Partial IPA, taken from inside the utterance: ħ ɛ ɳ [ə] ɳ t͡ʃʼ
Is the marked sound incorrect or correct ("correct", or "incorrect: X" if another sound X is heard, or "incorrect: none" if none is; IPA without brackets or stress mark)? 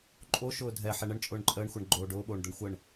correct